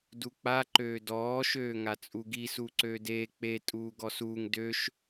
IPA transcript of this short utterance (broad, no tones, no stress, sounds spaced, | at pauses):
d u k͡p a ǃ øː d ɔː ʃ øː ŋ a t͡sʼ u ɡ i s uː ǀ øː d eː k͡p e tʼ uː ɡ ɔ s uː ŋ d ø ʃ